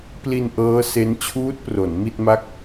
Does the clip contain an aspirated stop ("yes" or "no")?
yes